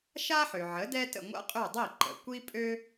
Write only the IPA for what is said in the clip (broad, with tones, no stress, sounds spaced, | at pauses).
ʃ a˥ ħ ø˩ ʕ ə˩˥ d ɛ˥ t ə̰˥˩ ŋʷ a̰˥ qʼ ø˥˩ dˤ i˥˩ ǃ ə̰˩ kʷ i˥ pʼ ø˥